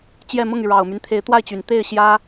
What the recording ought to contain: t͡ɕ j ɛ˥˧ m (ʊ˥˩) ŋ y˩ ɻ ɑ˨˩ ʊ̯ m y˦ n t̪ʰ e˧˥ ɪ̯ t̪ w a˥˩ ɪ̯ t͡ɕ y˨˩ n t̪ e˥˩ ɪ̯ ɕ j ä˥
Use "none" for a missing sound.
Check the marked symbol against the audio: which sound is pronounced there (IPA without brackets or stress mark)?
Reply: ʊ˥˩